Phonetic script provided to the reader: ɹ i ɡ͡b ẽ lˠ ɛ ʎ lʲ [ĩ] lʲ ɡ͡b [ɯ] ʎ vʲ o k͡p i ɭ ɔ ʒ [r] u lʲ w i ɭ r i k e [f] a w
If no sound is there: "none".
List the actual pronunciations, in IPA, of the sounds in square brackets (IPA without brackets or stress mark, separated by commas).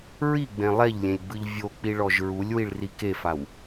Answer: ẽ, ɯ, ɹ, f